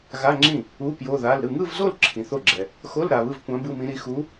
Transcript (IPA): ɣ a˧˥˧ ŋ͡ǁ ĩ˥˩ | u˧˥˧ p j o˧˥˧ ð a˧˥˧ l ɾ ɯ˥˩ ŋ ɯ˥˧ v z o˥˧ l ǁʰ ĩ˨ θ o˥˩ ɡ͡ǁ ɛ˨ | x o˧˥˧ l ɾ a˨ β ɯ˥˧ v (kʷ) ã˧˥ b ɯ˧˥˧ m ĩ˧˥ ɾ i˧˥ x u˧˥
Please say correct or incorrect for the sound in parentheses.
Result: correct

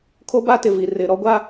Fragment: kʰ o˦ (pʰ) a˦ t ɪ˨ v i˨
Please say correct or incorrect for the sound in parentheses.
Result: incorrect: b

